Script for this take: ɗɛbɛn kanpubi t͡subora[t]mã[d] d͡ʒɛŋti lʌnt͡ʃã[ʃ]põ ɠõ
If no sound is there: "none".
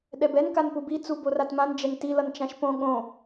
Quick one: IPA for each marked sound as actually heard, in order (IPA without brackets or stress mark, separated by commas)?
t, n, ʃ